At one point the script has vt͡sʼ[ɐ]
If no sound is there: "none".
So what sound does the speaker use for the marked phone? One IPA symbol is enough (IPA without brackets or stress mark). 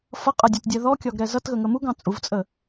ə